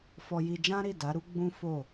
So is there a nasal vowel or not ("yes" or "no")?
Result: yes